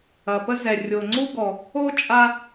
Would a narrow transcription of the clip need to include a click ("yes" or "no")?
yes